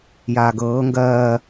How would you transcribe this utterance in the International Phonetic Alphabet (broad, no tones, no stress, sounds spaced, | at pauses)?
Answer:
j aː ɡ ɤː ŋ ɡ ɜː